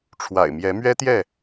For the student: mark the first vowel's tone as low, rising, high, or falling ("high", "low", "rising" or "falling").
low